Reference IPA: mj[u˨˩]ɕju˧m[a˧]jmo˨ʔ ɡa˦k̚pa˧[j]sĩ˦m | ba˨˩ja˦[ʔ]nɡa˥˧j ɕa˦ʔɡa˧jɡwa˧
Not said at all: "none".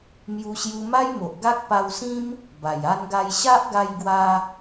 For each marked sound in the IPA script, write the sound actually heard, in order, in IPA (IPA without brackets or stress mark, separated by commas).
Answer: u˧, a˦, w, none